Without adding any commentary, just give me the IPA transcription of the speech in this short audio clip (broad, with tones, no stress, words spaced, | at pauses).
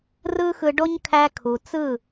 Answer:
rɯ˦xɯ˧ɖo˦ɲkʰæ˧ kʰu˨t͡sɯ˦˨